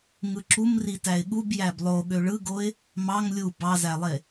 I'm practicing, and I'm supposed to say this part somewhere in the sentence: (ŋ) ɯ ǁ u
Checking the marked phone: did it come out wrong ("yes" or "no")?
no